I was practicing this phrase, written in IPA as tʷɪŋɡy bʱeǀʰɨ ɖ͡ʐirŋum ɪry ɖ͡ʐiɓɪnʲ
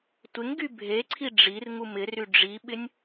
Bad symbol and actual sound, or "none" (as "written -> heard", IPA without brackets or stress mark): ɨ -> i